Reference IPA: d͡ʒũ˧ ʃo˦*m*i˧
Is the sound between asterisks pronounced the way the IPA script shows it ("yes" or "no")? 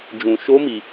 yes